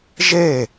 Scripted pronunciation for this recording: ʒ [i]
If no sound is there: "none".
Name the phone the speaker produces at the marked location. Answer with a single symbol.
e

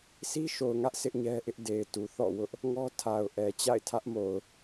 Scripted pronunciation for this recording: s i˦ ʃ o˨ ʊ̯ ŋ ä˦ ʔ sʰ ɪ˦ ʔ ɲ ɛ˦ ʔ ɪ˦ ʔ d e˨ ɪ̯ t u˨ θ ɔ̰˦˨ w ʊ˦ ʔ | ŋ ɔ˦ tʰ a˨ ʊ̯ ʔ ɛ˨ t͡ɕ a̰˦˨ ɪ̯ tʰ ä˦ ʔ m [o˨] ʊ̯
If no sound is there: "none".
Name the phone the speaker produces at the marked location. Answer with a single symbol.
o˨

